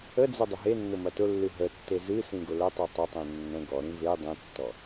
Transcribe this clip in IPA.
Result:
ə d͡z ə dˤ ʊ ɦ e nː ʊ m ɐ t ʊ lː ɨ ɦ ə tː e z ɨ s ĩ ɡ ʊ l ə tˤ i tˤ ə tˤ ĩ nː ə̃ ɡ ɔ ɾ ĩ v e dˤ ĩ tː ɔ

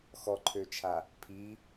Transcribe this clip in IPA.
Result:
x ɔ ǃʰ ø t͡ʃʰ a | pʰ i

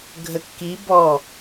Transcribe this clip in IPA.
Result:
ɡʱ ə kː i b ɔ

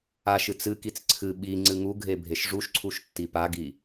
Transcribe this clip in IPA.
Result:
a ʃ ɨ t͡s ɨ k i t͡s ǀʰ ɨ ɓ i ŋ͡ǀ ɨ ŋ u ɡʱ e bʱ e ʃ ʐ u ʃ ǀʰ u ʃ tː i p a ɡ i

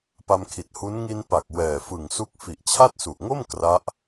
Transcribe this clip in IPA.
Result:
p a˧ m kʰ i˨˩ t̚ h u˦˥ n ŋ i˧ n p a˨˩ k̚ w ɛː˨˩ f ɯ˨˩ ŋ s u˦˥ k̚ f i˨˩ ʔ t͡ɕʰ a˥˩ t̚ s u˨˩ ʔ ŋ o˥˩ m k r a˦˥ ʔ

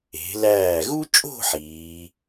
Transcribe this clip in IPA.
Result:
e̤˩˧ l æː˧˩ ɣ u˥ t͡ʃʼ o̤˥˧ ħ iː˩˧

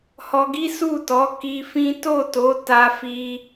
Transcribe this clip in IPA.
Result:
h ɔ˧ ɡ i˦ s u˦˨ t ɔ˨˦ k i˧ f ĩ˦ t o˦˨ t o˨˦ t a˦ f i˦

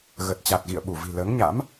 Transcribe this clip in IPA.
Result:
ɣ ə˨˩ t̚ t͡ɕ a˨˩ t̚ ɣ ḭ˧˨ ə̯ ɓ u˧˩ v i̤˨˩ l əː˨˦ ŋ ɲ a̰˧˥ m

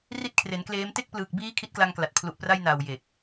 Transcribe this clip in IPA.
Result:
r i˥˩ t̚ kʰ r e˩˦ n k l eː˦˥ m t e˥˩ k̚ p l ɯː˨˩ k̚ b iː˦˥ kʰ i˦˥ t̚ k l a˧ ŋ k l a˨˩ t̚ pʰ l u˨˩ ʔ p r a˧ j n a˨˩ w j e˨˩ k̚

